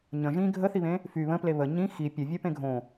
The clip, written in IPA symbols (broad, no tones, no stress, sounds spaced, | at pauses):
ɲ ə̃ ʒ ĩ ɡʱ ə θ i β ẽ | f y β ə̃ p l e β ə ɲ ĩ x i pʲ ə˞ vʲ ə˞ p ẽ ɡʱ õ